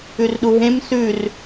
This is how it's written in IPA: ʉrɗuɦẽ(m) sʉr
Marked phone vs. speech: correct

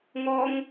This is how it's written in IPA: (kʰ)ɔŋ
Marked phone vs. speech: incorrect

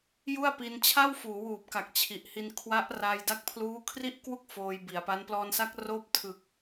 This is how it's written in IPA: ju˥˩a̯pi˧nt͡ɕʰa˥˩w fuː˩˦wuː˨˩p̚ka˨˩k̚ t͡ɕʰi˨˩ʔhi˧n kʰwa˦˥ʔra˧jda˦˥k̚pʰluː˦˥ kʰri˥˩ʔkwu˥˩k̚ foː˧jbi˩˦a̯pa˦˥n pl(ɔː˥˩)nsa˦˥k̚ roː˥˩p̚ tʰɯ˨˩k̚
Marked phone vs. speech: incorrect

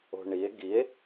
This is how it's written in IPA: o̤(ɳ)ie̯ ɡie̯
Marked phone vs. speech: correct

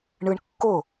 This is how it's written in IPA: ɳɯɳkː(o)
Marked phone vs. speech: correct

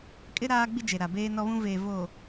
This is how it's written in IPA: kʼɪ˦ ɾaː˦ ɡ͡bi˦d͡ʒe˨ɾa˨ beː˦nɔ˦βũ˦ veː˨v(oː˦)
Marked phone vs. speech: incorrect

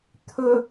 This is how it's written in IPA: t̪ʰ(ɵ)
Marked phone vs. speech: correct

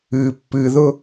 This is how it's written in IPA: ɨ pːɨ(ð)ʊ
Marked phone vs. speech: correct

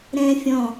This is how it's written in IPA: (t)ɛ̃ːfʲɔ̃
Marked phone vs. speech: incorrect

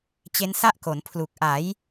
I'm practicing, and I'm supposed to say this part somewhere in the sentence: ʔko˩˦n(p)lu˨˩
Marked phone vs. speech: incorrect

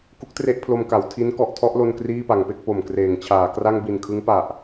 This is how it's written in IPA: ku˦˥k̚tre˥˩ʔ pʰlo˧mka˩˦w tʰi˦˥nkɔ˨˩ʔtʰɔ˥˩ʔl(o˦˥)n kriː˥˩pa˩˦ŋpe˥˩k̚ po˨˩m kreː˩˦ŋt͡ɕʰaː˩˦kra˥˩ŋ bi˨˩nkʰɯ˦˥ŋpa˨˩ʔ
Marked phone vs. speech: incorrect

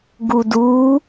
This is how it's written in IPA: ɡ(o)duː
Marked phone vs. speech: incorrect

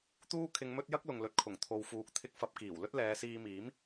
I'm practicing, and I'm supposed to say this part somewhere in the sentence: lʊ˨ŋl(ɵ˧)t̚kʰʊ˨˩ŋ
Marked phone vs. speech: incorrect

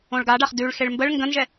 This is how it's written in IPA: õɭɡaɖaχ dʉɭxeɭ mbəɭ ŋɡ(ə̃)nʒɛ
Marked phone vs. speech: correct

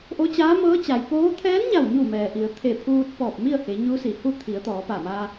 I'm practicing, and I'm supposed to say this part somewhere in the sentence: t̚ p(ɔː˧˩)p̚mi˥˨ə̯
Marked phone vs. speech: correct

